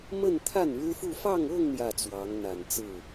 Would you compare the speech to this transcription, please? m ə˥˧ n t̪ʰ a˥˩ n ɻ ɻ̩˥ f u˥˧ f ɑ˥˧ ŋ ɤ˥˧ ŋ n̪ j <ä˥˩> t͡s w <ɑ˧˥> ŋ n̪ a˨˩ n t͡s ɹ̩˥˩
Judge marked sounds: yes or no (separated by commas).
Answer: yes, yes